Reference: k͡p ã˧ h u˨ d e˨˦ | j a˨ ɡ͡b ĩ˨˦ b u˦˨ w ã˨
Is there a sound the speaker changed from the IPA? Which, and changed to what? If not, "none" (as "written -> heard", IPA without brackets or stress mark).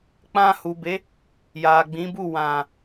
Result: d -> b